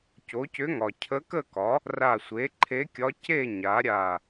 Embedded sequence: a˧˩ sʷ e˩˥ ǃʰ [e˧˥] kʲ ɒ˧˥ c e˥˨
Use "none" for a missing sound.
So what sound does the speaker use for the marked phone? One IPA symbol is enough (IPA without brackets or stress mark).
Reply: e˧˥